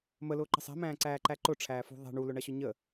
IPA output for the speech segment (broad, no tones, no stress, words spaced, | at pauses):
məlʊːǃə̤ sˤɛ̤mæ̃ːǀæːǃæ ǃʊʈ͡ʂʰæːfṳ ðˤɛ̤ ɳulʊɳʌɕʊ ɲə